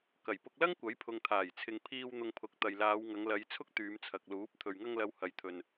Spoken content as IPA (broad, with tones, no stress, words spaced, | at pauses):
kɐ˨˩jpʊ˧k̚lɐ˥ŋ kʷɐ˨˥jpʰʊ˨ŋt̪ʰaː˨˩jt͡sʰɪ˨ŋ pʰiː˧w n̪ʊ˧ŋpʰʊ˨˥k̚ t̪ɐ˨jlaː˨˧w ŋɐ˨˧ŋlɐ˨˧jt͡sʰʊ˥k̚ t̪yː˨˧mt͡sʰɐ˨k̚luː˨˥p̚ t̪ʰɵ˨ɥŋɐ˧ŋlɐ˨˧w hɐ˨jt̪ʰɵ˨n